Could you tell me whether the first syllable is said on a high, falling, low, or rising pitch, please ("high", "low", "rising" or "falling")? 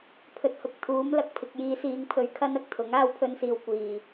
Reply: low